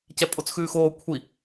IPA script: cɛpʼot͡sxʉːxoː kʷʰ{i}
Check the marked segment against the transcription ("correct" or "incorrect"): correct